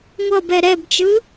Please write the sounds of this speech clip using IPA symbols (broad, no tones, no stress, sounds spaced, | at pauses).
ŋʷ ʌ b ɛ ɾ ɛ b t͡ʃ ɯ